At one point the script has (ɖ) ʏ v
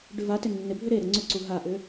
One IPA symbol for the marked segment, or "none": ɖ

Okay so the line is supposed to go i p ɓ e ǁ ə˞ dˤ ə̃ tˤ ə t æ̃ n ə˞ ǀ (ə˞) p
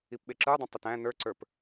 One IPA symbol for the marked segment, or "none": ə˞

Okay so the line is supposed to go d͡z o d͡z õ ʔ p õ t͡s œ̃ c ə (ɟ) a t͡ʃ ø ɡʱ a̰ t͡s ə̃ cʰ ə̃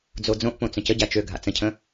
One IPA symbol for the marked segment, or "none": ɟ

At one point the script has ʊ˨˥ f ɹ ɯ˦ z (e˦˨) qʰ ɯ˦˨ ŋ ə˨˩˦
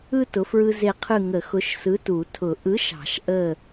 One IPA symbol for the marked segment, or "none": e˦˨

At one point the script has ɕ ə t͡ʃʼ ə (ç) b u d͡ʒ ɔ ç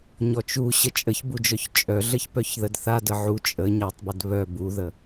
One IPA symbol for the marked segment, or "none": ç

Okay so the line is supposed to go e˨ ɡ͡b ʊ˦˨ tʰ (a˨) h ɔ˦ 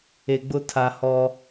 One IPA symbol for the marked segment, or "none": a˨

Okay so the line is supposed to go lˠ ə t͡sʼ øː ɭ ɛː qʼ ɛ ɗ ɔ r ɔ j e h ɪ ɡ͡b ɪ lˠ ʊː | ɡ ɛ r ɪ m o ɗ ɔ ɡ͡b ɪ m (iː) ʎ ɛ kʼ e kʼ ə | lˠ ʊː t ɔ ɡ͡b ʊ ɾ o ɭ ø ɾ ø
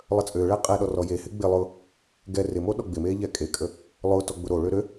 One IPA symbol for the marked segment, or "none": eː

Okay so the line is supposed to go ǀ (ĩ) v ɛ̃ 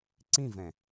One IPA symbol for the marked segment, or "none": ĩ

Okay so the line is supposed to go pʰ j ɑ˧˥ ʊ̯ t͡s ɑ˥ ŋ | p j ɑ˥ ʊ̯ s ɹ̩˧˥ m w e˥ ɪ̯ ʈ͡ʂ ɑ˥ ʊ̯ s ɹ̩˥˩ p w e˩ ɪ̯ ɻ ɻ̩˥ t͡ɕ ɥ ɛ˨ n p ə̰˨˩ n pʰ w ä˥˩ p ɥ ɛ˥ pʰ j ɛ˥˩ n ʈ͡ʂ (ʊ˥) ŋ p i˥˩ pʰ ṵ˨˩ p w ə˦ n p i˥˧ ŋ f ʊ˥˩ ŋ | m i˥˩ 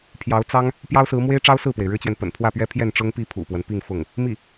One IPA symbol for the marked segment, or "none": ʊ˥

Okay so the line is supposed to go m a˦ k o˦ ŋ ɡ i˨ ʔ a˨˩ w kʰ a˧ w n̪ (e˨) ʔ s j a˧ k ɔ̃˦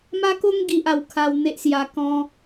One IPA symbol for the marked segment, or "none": e˦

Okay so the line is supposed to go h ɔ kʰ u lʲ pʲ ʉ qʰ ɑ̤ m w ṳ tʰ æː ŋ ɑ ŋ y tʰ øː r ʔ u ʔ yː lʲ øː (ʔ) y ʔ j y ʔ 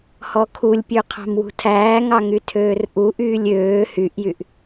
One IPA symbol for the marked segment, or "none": h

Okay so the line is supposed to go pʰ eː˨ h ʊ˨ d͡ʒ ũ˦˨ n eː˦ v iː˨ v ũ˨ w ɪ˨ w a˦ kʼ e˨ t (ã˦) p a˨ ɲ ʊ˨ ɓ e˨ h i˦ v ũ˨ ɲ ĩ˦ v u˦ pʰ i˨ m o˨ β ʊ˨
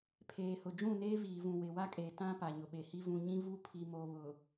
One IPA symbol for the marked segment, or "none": ã˦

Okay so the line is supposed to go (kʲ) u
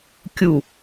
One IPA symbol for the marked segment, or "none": kʲ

